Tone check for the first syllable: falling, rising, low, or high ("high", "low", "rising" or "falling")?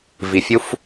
low